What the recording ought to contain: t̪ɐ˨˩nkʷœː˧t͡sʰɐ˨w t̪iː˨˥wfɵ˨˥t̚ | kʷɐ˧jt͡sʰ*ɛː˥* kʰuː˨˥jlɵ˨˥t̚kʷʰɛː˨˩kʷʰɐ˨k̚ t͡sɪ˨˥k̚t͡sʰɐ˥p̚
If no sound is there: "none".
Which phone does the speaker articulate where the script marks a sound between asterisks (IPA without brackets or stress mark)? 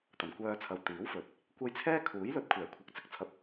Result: ɛː˥